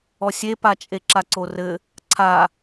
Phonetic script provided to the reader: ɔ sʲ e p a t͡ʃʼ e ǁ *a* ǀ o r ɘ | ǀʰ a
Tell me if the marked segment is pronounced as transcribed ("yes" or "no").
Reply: yes